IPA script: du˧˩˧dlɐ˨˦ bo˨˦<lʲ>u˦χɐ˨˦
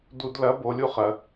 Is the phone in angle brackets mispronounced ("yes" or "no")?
no